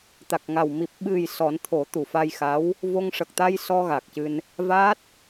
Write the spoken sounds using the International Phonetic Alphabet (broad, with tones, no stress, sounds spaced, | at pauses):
t̪ a˨˩ k̚ ŋ a˨˩ w m i˨˩ p̚ ɓ ɨ˨˩ j s ɔ˨˩˦ n t̪ʰ o˨˩˦ t̪ u˨˩˨ f a˧ j x a˧˥ w | v o˧ ŋ ʂ ə˨˩ k̚ t̪ a˧ j s ɔ˧ ɣ a˨˩ k̚ c ɨ˧ n | v aː˦˥ t̚